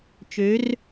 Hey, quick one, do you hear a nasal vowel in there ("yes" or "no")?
no